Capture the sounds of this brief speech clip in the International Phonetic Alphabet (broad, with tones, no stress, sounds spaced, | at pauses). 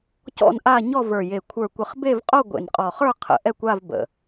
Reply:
c ɔ̰˥˧ n ʔ a˥˧ ɲ ɔ˥˧ v ə˞˨˩ j e˨˩ kʷʰ ə˞˨˩ kʷ ə˨˩ χ b e˥˧ v qʼ o˥˧ ɡʷ ḛ˨˩ n qʼ ɔ˨˩ χ ə˞˥˧ qʰ ə̰˨˩ ʔ ɛ˥˧ kʷ a˥˧ v b ə̰˨˩